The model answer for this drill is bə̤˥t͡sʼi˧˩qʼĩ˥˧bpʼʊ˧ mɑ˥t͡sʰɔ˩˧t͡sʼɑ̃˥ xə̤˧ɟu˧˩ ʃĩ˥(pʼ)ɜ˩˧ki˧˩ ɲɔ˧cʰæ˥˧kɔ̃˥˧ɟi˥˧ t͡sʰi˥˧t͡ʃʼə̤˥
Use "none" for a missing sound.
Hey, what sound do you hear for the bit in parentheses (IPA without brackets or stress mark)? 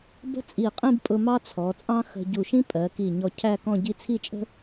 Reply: pʼ